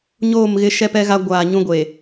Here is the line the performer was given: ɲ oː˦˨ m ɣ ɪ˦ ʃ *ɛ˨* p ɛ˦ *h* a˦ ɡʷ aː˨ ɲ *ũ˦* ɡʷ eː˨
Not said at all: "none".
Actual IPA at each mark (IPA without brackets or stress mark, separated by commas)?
ɛ˦, ɣ, ũ˦